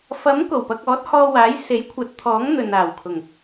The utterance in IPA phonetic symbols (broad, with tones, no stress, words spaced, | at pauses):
fɐ˨˥m ko˨˩wpɐ˧k̚ɔː˨˥t̚ hɔː˧waː˨˥j se˨˥jkʷʰɐ˨˥t̚t̪ʰɔː˨˥ŋ n̪ɵ˨naː˨˩wkʰʊ˨˩ŋ